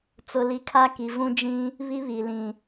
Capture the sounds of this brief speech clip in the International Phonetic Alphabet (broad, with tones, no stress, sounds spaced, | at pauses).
t͡s ʊ˨ l i˨ kʰ a˦ k i˨ v ũ˦ d͡ʒ ĩ˦ | β i˦ β i˨ l ĩ˨